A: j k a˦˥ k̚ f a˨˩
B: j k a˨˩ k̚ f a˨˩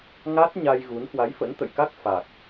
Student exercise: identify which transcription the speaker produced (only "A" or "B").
A